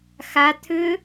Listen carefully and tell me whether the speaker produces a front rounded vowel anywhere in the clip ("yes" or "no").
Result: yes